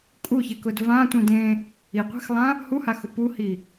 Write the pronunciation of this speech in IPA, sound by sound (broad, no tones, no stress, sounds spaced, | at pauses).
kʼ u ç ɪ k ʊ d v ã tʷ ĩ d ẽ | i qʷ e̤ x lˠ ã | h u h a x ʊ p u h i